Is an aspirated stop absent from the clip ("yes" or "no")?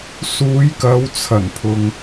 no